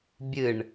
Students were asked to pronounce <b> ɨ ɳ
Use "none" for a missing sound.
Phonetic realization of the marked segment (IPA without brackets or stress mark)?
bʲ